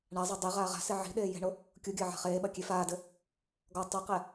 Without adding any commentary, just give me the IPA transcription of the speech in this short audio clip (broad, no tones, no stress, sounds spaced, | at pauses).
ɳ a zˤ a dˤ i ʁ aː ʁ a̤ s e ʕ i̤ ɗ eː j e̤ ɳ o | kʲ u ɡʲ ɐː ʕ a̤ χ eː ɓ ɐ kʲ e f aː d ɘ | ɡ ɔ tˤ ɘ q ɛ